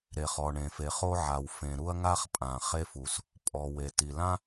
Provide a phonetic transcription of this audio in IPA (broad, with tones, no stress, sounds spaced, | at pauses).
ɾ e˩ χ ɔ˩ ɳ ẽ˩ f e˩ χ o˥ ʕ a˩ w f ẽ˩ ɾ u˥ ɐ̯ ŋ a˥ χ pʼ ã˩ χ e˥ f u˩ s | pʼ ɔ˩ w e˩ t i˩ l ã˥